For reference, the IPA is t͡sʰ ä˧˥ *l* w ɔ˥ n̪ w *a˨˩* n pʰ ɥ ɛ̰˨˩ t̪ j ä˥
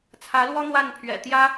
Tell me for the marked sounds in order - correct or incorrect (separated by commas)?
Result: correct, incorrect